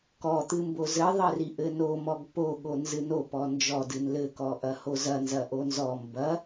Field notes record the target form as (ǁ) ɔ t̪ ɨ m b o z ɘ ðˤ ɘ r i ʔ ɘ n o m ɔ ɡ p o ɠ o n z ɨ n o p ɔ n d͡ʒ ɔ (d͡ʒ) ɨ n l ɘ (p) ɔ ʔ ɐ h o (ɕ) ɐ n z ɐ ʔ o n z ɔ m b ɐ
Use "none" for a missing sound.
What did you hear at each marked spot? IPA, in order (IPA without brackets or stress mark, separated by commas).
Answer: k, d, k, z